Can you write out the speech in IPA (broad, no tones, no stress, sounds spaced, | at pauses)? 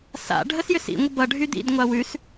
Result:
s a̰ ɖʱ ə s j ʏ s ḭ ŋʷ ə b ʌ ɖʱ y d̪ ḭ d ŋʷ a w ʉ s